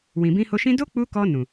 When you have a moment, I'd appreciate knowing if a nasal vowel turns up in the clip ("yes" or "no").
yes